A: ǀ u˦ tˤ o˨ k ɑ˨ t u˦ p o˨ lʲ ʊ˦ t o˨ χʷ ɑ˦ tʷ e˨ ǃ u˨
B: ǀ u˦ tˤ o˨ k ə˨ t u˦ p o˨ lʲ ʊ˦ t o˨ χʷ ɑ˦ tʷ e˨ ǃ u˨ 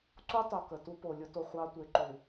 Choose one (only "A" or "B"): B